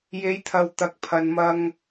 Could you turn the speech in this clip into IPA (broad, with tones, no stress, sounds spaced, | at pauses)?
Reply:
j e˨˧ j t̪ʰ ɐ˨ w t̪ ɐ˨ k̚ pʰ ɐ˨ n m ɐ˧ ŋ